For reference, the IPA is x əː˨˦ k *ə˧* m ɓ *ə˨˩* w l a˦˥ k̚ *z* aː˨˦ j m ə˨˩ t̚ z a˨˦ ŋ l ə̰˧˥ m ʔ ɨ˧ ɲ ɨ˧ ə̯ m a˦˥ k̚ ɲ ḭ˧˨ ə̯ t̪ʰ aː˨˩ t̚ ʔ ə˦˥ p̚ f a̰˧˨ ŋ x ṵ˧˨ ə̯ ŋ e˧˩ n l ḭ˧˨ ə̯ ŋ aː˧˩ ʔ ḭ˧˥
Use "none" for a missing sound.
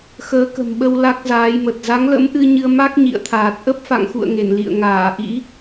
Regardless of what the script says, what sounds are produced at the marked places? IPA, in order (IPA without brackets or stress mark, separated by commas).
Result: ə̤˨˩, ə˧, z